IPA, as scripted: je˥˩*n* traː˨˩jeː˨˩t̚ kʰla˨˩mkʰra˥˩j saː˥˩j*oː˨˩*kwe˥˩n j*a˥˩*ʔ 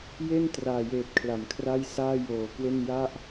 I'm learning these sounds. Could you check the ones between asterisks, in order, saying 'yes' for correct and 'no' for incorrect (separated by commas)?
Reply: yes, yes, yes